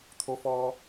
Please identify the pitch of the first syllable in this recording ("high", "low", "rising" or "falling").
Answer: low